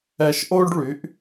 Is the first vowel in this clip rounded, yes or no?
no